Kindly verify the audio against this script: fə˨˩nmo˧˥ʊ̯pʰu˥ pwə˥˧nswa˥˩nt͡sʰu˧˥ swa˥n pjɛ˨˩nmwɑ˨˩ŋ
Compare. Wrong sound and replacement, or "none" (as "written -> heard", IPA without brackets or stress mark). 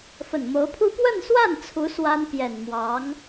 ɑ˨˩ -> ɑ˧˥